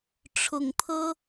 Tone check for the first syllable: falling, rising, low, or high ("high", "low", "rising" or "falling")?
low